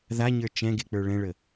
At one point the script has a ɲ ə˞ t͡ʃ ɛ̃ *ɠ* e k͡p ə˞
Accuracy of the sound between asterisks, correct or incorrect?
incorrect